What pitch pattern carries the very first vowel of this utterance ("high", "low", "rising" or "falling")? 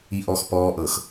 low